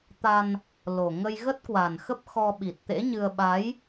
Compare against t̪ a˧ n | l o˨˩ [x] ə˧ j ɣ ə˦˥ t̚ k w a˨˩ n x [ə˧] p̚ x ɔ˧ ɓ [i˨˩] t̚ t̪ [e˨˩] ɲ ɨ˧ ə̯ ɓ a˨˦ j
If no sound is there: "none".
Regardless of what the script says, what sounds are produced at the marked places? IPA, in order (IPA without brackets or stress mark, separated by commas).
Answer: ŋ, ə˦˥, i˨˩, ḛ˧˥